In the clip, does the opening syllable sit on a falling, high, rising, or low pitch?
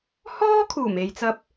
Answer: high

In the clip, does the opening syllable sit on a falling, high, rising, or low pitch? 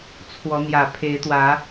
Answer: rising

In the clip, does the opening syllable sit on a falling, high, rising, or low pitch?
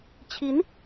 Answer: rising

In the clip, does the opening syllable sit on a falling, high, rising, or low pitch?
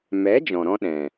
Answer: rising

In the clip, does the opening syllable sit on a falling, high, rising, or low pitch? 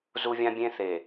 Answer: high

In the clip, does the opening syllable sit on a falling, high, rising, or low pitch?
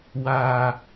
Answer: high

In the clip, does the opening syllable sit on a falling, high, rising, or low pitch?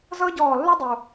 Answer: high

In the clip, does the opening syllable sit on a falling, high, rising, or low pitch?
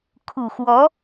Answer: low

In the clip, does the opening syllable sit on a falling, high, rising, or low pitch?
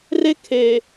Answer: high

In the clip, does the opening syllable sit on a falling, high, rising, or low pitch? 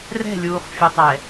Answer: falling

